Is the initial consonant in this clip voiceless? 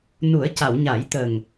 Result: no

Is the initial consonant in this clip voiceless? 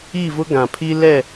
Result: no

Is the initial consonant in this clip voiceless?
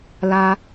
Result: no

